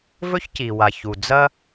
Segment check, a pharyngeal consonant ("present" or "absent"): absent